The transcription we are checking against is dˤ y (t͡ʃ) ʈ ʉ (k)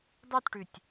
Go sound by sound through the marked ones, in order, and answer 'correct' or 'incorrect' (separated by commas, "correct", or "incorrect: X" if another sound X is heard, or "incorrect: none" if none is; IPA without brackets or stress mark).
incorrect: t, incorrect: tʲ